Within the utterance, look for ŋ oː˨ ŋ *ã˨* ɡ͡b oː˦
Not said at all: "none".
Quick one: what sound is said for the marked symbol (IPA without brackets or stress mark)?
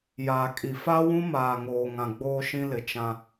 ã˨